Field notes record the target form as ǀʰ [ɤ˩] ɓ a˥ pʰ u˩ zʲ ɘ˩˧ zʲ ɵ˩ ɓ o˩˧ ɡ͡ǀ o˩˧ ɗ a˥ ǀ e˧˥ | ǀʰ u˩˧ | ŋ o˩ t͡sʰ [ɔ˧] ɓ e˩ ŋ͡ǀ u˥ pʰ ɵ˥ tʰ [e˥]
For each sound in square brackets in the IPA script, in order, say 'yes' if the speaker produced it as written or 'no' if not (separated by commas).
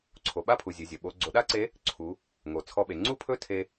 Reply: no, yes, no